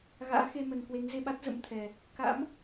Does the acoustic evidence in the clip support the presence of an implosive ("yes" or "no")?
yes